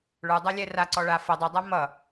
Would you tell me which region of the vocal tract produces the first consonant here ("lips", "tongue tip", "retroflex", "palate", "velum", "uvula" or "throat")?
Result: retroflex